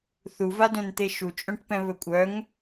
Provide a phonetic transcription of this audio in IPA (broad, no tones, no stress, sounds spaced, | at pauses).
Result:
θ u v a d œ̃ n t̪ e ʃ u t͡ʃʼ œ̃ ʈ p ɛ̃ β ɵ kʷʼ œ ŋ